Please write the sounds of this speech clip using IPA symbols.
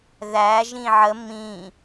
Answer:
ðæ ʒĩʕə mĩ

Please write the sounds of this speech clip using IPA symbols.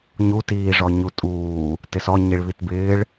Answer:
ɲutiːʐɔ ɲutʼuː | tɪsɔ ɲiɭβitbɪːɭ

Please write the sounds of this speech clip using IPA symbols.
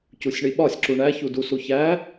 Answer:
cusʲɳiɓɒsʲ ǁuɳæçu dusuçæ

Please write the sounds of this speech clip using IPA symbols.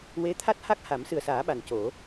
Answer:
we˧˥t̪ʰa˦˥t̚ ha˦˥k̚ha˨˩˦msɨ˨˩ə̯saː˨˩˦ ɓa˨˩nco˨˩˦

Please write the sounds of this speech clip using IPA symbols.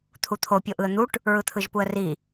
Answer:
t̪ʰut̪ʰo pʲoʔɯə̯n̪uʈ | ɹɯt̪ʰɯʒpuə̯ri

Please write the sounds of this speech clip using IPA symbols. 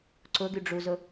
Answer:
ǀʊɡyɖ͡ʐuzʊ

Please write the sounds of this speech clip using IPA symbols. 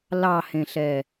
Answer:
lɑhẽɬɛ

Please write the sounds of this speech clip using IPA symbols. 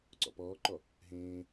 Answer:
ǀɔ̰pɔːǃɔ | ɦẽː

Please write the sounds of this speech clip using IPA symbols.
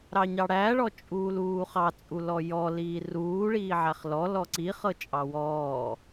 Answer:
ɾɑɲɑɽæɭɔ t͡ʃʼuːluːχɑt͡sʼu lɔjɔ liːruːɭiː ʕæχlɔ lɔǀi χɤt͡ʃʼɑwɔː

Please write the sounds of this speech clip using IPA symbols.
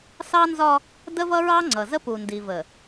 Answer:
sɑ˦nzɒ˦ | də˦vʌ˦ɹɑ˦ ŋ͡ǀʌ˨zə˦pu˨ ndi˨və˨

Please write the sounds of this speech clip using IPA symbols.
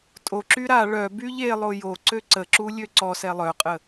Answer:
tʼoǁy ɾa ɭœby ʎelˠo joǀø ǀəǁu lʲøǀɔsɛ lˠœqʼə

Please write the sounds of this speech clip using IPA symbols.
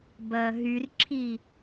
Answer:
bɐːɦyrǁʰi

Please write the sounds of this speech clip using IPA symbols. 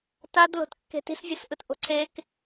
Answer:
tadlo̤t kːe̤ti̤svʲʌsʔɯt ʔo̤ǀʰek

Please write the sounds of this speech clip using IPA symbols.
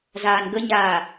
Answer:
zaːnɡəɲaː

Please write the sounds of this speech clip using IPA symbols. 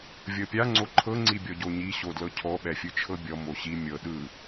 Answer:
vʲɤpʲa ŋ͡ǀoǃʰɤ ŋ͡ǀibʲɔɟoɲi ɕodlɤcʰɔ ɓɛfʲɯt͡ʃʰɤbʲɔ moɕi mʲɤ ɗɯ

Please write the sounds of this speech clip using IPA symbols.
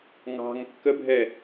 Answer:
ŋɑ̤ŋ kːəbʱɛ

